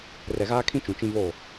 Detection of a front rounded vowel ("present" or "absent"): absent